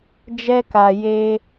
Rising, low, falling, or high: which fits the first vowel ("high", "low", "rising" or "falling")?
high